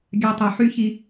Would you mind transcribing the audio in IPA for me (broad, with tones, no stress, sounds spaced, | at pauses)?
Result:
ɡʲ a˧ tˤ ø˩ ħ y˥ ç i˧